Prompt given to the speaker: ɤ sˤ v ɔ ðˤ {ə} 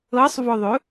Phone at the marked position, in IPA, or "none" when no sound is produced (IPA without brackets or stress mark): ɵ